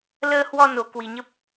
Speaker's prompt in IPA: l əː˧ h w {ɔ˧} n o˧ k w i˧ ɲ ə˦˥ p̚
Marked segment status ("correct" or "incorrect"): correct